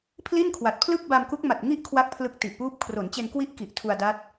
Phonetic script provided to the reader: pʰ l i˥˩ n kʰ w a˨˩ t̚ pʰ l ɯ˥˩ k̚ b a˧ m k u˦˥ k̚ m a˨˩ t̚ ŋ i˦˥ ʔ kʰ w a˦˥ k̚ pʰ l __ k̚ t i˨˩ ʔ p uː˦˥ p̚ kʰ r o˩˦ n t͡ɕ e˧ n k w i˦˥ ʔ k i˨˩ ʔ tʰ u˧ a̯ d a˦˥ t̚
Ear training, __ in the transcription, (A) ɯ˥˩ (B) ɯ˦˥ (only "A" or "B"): B